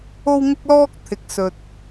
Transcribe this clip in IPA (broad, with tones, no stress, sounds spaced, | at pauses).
o˥ w ŋ ɪ˥ k̚ l ɔː˥ k̚ t̪ʰ ɪ˨ k̚ s ɵ˨ t̚